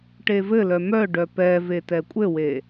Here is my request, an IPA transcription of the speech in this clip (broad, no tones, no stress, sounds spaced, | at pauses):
ʈ e v ɘ l œ m œ ɖ œ p ɛ v e t ɛ kʷʼ ɘ w e